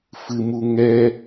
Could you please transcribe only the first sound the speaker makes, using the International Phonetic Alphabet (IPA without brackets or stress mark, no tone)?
f